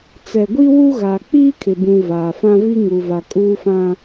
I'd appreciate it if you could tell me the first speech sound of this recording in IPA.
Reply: t͡s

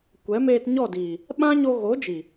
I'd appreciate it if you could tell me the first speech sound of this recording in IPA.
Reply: kʷ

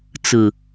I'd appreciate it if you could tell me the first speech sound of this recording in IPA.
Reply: t͡s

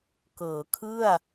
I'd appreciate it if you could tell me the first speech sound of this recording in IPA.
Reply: k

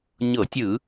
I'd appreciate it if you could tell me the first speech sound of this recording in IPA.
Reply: ɲ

